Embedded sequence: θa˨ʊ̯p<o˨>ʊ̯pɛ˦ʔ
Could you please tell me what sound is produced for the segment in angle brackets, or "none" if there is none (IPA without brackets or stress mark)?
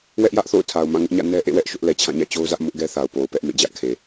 o˨